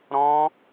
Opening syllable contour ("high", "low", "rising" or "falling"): high